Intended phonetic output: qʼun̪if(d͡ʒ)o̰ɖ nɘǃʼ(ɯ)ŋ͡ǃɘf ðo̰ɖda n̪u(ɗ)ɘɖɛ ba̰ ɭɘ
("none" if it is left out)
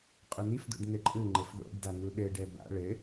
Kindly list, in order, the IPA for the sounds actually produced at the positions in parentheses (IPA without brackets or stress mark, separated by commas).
d, ɯ, ɗ